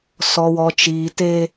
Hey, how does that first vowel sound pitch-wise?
low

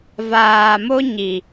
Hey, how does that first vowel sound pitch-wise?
low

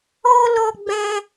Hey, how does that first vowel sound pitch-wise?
high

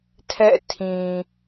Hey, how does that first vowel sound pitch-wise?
falling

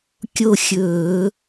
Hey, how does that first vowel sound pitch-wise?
falling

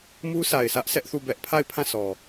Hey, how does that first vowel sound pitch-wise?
high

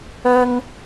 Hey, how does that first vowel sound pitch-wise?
high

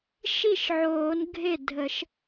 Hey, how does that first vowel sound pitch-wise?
falling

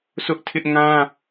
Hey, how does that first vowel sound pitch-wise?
high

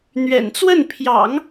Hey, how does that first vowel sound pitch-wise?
low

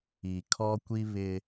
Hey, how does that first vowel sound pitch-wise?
low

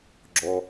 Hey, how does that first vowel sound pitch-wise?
low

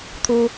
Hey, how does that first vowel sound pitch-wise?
high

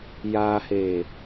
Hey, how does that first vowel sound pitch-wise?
low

